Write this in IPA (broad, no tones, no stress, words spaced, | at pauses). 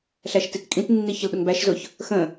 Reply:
ɬæʃtitkʼĩtnːi çəlɗʊŋbæʃzʊç | xə̃